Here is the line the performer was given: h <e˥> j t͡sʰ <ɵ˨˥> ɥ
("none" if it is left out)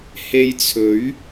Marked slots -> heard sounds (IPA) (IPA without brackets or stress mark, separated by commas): e˧, ɵ˨˥